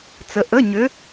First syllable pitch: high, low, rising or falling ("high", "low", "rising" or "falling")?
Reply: rising